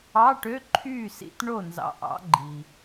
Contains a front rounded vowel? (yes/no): yes